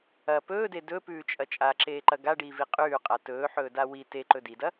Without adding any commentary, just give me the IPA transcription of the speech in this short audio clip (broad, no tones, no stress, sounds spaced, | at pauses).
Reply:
ɐ p ɵː d e d ɵ p ʉː t͡ʃʼ ɐ t͡ʃʼ a ǁ eː ǃ ɐ ɡ a ɖ iː v i qʼ ʉː qʼ a t ɵː ħ ɵː d a w i t e ǃ ɵ d i d ɐ